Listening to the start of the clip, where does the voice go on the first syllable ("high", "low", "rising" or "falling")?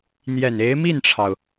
low